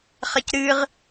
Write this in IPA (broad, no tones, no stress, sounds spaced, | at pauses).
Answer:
χ ɐ c ɾ ɨ ʁ